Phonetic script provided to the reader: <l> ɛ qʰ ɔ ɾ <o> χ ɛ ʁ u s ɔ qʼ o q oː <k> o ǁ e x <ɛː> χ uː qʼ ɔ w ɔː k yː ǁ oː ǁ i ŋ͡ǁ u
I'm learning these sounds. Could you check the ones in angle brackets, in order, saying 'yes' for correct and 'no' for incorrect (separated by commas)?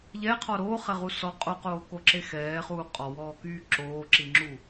no, no, yes, yes